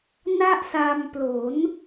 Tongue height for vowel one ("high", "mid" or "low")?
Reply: low